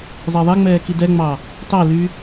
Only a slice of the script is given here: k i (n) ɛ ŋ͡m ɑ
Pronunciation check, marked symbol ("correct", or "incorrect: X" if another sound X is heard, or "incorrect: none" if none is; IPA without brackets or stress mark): incorrect: d